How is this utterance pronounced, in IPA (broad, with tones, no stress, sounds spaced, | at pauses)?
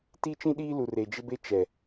t i˦ t͡ʃ ĩ˦ ɗ iː˦ l u˨ r e˨ d͡ʒ ɪ˦ b e˦ t͡ʃ ɛ˨